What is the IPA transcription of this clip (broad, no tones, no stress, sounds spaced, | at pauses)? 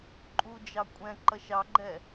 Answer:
ǃʼ u d͡ʒ ɑ kʷʼ ɛ̃ ǃ ʌ ʃ ɑ ɡ͡ǃ ɛ